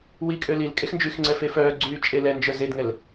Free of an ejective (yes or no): no